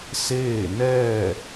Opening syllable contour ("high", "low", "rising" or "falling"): falling